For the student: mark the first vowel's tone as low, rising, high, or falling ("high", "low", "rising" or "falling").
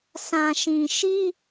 low